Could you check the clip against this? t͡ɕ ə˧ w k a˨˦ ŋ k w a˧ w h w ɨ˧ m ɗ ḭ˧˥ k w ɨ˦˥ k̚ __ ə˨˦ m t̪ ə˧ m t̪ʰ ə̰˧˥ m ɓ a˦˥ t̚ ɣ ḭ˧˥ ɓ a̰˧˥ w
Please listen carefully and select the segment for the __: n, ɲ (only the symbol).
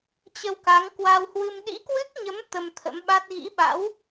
ɲ